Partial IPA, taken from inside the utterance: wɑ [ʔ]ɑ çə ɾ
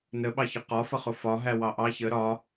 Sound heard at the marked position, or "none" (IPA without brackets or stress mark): ʔ